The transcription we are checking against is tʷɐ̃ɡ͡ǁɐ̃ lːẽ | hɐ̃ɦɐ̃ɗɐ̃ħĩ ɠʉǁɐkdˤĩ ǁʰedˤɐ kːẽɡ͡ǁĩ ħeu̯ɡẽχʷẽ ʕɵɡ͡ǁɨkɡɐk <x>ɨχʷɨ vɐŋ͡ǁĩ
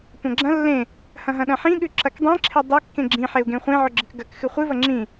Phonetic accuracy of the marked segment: correct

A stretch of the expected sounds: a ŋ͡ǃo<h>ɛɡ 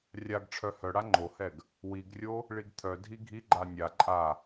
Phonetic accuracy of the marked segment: correct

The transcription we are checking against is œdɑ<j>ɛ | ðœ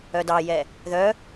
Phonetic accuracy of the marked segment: correct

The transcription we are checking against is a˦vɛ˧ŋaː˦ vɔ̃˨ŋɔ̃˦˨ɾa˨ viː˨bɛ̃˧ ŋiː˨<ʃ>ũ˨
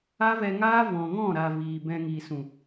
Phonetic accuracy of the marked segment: incorrect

